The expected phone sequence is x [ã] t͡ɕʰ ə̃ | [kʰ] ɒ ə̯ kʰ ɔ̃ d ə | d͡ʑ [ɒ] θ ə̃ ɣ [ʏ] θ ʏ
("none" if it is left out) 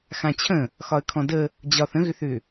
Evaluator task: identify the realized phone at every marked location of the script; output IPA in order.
ã, x, ɒ, ʏ

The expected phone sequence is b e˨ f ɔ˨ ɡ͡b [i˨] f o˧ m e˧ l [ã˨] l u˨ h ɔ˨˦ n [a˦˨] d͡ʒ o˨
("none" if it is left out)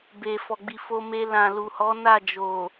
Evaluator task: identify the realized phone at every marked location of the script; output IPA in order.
i˨, ã˨, a˦˨

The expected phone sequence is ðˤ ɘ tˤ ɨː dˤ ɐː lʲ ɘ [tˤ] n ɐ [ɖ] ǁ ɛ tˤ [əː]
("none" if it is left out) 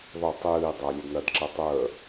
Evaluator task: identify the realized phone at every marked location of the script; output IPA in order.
d, d, əː

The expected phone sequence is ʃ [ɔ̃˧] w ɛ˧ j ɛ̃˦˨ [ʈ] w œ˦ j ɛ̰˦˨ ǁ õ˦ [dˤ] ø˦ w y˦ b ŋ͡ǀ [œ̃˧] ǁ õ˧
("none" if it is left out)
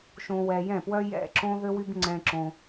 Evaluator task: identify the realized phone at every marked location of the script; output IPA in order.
õ˧, p, ð, ɛ̃˧

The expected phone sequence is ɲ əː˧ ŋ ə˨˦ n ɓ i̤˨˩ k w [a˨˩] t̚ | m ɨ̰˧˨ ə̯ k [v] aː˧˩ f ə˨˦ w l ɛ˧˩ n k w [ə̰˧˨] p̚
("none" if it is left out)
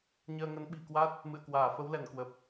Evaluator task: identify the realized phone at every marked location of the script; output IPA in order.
a˦˥, w, ə˨˩

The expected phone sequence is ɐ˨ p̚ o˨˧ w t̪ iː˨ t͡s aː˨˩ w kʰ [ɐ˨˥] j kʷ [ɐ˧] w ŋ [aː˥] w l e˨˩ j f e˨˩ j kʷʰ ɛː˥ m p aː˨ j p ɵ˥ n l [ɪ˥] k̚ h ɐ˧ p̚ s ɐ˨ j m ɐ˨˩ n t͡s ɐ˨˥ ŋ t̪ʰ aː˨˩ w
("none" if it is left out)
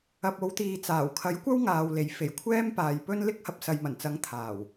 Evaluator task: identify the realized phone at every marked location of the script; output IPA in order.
ɐ˨˥, ɐ˥, aː˨, ɪ˥

